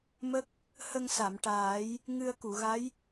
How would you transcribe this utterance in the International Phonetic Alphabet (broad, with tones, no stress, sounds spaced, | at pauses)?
m ə˦˥ k̚ | h ə˧ ŋ s a˨˩˨ m ʈ aː˨˩˦ j | ŋ ɨ˧ ə̯ k u˨˩˨ ɣ a˧˥ j